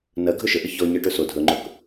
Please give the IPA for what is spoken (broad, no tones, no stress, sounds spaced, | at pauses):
n ɜ ɡʱ ɵ ʃ ə ʔ ə ç ɔ ɲ ɜ ʈ ɵ s o dʱ ɵ ŋ͡ǃ ɵ k